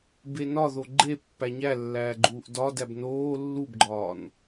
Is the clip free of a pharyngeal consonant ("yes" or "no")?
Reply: yes